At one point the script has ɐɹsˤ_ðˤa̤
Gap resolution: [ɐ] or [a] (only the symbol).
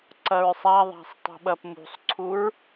a